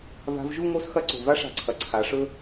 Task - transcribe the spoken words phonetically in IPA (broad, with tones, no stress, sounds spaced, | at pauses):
v a̤˧ v ʒ u˥˧ ŋ o˥ s x ɐ˥ ǀ o̤˧˩ v a˥ ʂ a̤˧˩ ǀʰ ɐ˩˧ ǀʰ a˩˧ ʂ ɵ˥